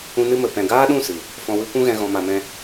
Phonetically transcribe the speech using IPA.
ũ˧ n ɨ˧ m ə˨ p ɛ̃˨ ɡ aː˦ ɗ ũ˦˨ s ɨ˨ | f ɔ̃˧ w ɨ˦ kʷ ũ˦ ɣ ɛ̃˧ ɣ ɔ̃˧ m a˧ m ɛ̃˦

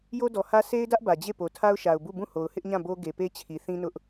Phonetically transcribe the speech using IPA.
j o˦ d ɔ˨ h ä˦ sʰ e˦ ɪ̯ d ä˦ ʔ b ä˨ d͡ʑ e˦˨ p o˨ tʰ a˦ ʊ̯ ʃ a˨ ʊ̯ b u˦˨ b ũ˦˨ h o˨ ʊ̯ h ɪ˦ ʔ ɲ ã˦˨ b o˦ ɡ e˨ p e˦ t͡ɕʰ i˨ θ ĩ˦ n ʊ˦ ʔ

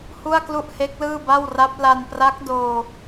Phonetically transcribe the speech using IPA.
h u˥˩ a̯ k l u˥˩ ʔ h e˦˥ k̚ l ɯː˥˩ b a˥˩ w r a˦˥ p̚ l a˧ n p r a˦˥ k̚ d oː˧

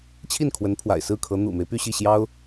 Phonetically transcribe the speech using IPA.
t͡ɕʰ i˥˩ n kʰ w ə˧˥ n pʰ w a̰˨˩ ɪ̯ s ɹ̩˥˩ kʰ ɤ˧˥ n̪ ṵ˨˩ m e˦ ɪ̯ p y˥˧ ɕ i˥˩ ɕ j ɑ˥ ʊ̯

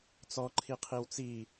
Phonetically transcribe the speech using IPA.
t͡s ɔ ǃʰ i qʰ i w t͡s i

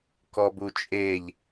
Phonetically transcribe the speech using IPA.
k ɔ b u t͡ʃʼ e ʎ

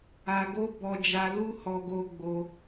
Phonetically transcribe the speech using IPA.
a˧ ɡ o˦ b ɔ˧ d͡ʒ a˧ l u˦ h ɔ˧ ɡ o˧ ɡ͡b o˧

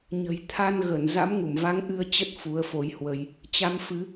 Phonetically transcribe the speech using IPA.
ɲ ə̤˨˩ j t̪ʰ a˧ n ɣ ə˧˩ n z a̰˧˥ m ŋ u˧˩ m v a˨˦ ŋ ʔ ɨ˧ ə̯ t͡ɕ ə˦˥ t̚ f u˨˦ ə̯ f o˧ j h w ə˧ j | t͡ɕ a˧ m f ɨ˨˦

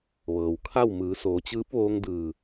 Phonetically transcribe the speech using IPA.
ʋ ɤː˩ w kʰ a˥˨ w m ɯː˩˧ s oː˩˧ t͡ɕ ɯː˧˥ p̚ ʋ oː˧ ŋ d ɯː˧˩

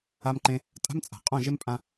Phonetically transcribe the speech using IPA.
a˧ m ǃ ẽ˧ | tʼ a̤˦ m t͡sʼ a̤˨ qʼ õ˦˨ ʒ e˦ m pʼ ã˦

